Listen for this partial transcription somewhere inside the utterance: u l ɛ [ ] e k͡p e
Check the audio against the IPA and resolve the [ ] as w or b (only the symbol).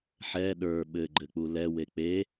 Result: w